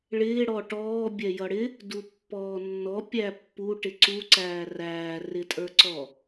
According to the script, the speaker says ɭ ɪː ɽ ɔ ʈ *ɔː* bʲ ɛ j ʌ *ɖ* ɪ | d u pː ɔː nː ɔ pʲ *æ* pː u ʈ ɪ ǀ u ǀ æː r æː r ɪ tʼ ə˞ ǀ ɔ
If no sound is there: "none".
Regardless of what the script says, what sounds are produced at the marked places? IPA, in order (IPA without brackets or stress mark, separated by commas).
ɔː, ɽ, æ